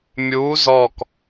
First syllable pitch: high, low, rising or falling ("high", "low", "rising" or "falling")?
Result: rising